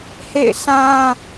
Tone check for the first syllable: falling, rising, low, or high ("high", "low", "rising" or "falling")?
falling